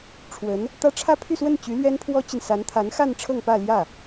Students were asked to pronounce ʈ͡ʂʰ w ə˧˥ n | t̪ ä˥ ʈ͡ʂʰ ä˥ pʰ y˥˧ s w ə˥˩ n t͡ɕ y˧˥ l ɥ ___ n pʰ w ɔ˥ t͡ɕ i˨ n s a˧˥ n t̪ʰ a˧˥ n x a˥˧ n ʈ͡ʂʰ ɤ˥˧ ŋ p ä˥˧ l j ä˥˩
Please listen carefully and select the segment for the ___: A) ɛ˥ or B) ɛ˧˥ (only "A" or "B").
A